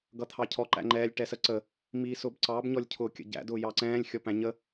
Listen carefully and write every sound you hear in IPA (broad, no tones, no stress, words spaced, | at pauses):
ɡʌt̪ʰɑcʰɔ ǃæ̰ŋ͡ǃɛːlʲ ʈɛsəǀə | miːsʊbǀɑb ɲɔlʲcʰʊːkʲə̰ɟæ̰ dʊːjɑǀɛ̃ːlʲ xʲɔpæ̃ɲə